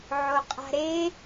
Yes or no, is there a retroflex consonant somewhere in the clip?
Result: no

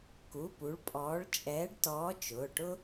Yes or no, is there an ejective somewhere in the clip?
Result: yes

